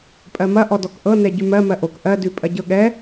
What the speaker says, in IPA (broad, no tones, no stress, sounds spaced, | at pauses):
pʼ ɜ m ɐ ʔ ɔ d ɔ k ʔ ɤ n ɛ ɟ ʉ m ɜ m ɜ ʔ o k ʔ ɜ d ʉ pʼ ɐ ɟ ɤ ɠ ɛ